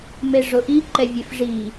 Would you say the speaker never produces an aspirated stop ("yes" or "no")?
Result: yes